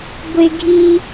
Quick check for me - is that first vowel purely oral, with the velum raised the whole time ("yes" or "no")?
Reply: yes